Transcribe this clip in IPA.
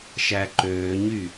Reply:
ʃæǃøːɲy

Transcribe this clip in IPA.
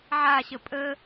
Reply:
ʕaɕə pʼə

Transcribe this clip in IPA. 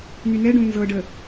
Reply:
nynɛɖõ nzɤɖə

